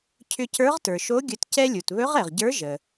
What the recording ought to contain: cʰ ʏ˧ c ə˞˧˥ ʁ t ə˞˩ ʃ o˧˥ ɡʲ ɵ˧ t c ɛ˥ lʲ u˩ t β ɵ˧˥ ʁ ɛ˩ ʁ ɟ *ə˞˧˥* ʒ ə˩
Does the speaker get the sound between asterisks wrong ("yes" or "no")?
no